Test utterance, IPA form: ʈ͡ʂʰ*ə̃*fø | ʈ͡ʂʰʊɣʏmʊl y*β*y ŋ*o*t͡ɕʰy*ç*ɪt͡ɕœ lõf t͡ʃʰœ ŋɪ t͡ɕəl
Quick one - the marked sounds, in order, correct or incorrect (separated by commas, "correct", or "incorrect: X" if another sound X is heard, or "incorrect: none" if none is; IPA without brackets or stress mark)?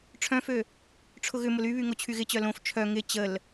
incorrect: œ̃, correct, correct, incorrect: ɣ